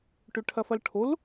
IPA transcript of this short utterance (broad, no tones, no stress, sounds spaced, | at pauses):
ʈ ʏ ʈʰ ɐ f ɐ l ʈʰ o l